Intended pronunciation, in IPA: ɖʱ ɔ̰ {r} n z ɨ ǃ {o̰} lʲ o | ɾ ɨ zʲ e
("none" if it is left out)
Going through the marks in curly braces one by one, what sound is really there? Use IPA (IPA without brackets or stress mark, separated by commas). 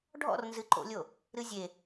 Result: r, o̰